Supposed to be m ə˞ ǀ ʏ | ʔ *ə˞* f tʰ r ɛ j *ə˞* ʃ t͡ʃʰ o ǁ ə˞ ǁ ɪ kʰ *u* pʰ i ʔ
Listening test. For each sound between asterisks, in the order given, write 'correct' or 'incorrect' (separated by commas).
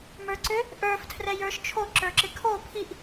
correct, correct, incorrect